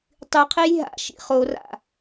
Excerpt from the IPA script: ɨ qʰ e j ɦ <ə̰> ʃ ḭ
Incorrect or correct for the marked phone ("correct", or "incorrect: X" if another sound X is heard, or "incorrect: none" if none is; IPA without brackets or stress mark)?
incorrect: a̰